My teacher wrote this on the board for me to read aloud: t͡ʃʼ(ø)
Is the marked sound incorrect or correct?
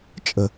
incorrect